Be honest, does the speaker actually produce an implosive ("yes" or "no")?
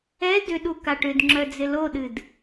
yes